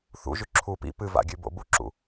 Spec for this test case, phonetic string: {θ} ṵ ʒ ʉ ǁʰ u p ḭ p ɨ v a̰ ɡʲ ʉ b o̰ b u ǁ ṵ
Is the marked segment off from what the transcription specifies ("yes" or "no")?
no